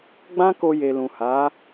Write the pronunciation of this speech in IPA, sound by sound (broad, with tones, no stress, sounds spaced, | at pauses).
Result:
ɡ͡b ã˦ k o˧ j e˨ l ũ˨ h a˨˦